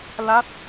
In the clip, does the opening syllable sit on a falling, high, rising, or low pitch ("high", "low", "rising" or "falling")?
falling